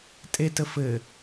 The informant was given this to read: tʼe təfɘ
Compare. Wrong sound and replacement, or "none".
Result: none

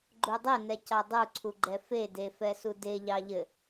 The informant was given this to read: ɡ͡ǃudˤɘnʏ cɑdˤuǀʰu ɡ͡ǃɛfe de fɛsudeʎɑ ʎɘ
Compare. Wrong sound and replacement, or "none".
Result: ʏ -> ɛ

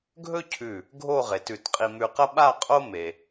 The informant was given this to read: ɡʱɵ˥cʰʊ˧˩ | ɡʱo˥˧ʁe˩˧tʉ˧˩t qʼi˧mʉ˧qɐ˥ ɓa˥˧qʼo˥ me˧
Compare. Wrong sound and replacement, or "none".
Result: ʊ˧˩ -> ʉ˧˩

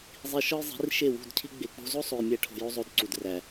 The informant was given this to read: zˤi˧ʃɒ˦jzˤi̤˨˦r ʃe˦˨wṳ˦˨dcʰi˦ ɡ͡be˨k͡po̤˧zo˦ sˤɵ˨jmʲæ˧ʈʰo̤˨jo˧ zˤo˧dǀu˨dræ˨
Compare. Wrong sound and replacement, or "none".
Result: ɵ˨ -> o˨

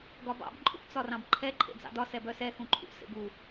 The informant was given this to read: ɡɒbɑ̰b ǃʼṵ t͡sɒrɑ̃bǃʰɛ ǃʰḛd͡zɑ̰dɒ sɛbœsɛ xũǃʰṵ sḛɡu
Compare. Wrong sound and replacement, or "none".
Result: none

